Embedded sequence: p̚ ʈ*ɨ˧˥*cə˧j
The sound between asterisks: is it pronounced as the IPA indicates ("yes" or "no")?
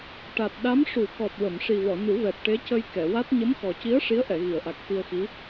no